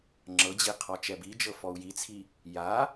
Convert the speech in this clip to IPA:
ŋ͡ǁɤd͡ʑi qʰɔt͡ʃɛbid͡ʒɤ fɔu̯jit͡sʰi | ja

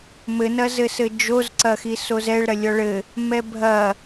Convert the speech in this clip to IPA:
mɘnɐzɘsɘ d͡ʒozǀɐxi sozɛɭ ɾɐlʲɔɭɘ | mɛbʱɐ

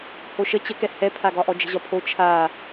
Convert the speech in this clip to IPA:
hoʃə t͡ɕəkɛ hɛpʰaɡɒʔɔ d͡ʒə̤ʑɒpʰo t͡ʃʰa

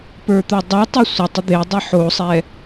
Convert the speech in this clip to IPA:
pə˞t̪ə˞dˤʌtˤi sʷʌtˤə d̪edˤi ħosˤɛ

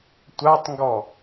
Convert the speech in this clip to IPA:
tʷatˤŋɡɔ

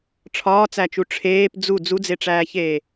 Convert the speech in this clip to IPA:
ʈ͡ʂʰɒːt͡sæt͡ʃu ʈ͡ʂʰeːp d͡zu d͡zud͡zeʈ͡ʂæːçeː

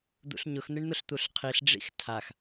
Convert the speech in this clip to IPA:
d̪ṵɬɲʊx n̪ɪɳn̪ʊɬt̪uɬqʰiɬ ɖ͡ʐḭxtʰax

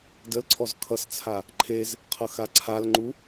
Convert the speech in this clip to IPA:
dəlǀʰɔz kʰʌst͡sʰa | ǃʰez | qʰʌxaǀʰalŋ͡ǃu

